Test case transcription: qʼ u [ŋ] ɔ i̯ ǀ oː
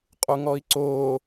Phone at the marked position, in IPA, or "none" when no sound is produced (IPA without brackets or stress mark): ŋ